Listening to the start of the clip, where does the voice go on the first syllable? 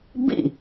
falling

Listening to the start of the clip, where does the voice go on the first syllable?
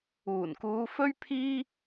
low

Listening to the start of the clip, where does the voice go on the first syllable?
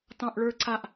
low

